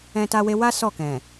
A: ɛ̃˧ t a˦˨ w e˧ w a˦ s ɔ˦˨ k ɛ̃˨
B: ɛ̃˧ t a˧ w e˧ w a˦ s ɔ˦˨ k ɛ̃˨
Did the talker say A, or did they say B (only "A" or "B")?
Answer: B